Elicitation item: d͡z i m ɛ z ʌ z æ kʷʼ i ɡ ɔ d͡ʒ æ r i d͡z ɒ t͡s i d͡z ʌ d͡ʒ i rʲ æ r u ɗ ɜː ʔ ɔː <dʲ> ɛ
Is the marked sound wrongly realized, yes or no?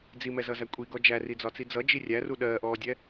no